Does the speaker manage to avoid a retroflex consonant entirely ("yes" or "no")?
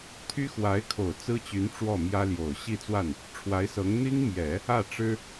no